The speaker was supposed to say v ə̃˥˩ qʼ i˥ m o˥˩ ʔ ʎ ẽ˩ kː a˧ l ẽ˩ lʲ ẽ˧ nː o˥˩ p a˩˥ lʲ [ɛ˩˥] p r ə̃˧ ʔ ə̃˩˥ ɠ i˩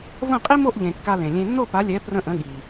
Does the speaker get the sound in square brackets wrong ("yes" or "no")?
no